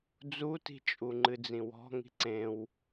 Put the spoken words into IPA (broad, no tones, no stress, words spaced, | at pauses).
d͡zuti̤t͡ʃʼuŋ͡ǃɨ d͡zĩwɔ̤ŋi̤ ǀẽw